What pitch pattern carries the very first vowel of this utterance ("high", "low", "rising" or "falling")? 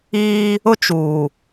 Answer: high